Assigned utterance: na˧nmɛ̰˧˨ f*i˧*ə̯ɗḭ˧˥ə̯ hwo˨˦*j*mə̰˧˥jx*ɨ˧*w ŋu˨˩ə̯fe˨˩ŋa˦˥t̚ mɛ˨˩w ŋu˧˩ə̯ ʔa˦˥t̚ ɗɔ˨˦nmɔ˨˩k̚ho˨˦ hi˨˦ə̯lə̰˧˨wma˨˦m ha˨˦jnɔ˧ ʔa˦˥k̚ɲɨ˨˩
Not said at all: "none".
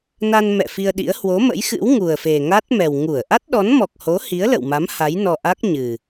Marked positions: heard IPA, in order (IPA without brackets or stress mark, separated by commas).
i˧, none, ɨ̰˧˥